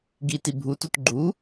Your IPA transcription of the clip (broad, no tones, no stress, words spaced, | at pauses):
ɡiti bʱutut ɡ͡ǃu